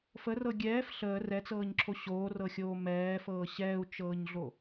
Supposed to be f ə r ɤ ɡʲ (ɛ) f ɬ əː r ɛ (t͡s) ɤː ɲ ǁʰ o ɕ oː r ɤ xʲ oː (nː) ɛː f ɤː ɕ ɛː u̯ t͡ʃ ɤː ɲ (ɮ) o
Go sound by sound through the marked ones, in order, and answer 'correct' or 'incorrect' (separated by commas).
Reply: incorrect, correct, incorrect, correct